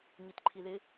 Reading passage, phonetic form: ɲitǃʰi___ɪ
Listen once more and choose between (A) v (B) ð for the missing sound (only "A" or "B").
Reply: B